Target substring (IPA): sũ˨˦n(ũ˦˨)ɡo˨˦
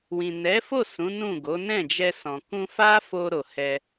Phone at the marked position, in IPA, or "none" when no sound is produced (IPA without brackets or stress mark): ũ˦˨